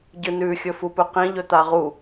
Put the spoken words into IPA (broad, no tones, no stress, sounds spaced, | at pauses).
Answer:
ɟ ɨ n ʉ xʲ ɵ f u p ɵ q ĩ ʎ ɵ t̪ a ʁ u